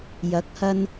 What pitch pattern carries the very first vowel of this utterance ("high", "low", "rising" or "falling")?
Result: rising